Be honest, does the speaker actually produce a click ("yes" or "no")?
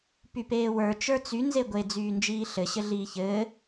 no